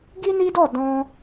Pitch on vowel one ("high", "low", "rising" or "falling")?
high